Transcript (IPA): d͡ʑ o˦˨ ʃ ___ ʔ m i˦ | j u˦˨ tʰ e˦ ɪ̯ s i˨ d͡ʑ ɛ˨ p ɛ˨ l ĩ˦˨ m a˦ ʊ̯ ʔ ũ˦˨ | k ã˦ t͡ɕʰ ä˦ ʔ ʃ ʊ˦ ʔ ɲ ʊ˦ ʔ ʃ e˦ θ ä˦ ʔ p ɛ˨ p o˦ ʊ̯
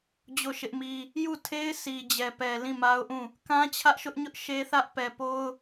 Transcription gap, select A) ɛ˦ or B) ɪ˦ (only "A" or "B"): B